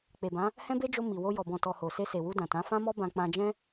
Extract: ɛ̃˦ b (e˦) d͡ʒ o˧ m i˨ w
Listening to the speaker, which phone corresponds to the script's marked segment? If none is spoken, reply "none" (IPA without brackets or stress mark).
e˦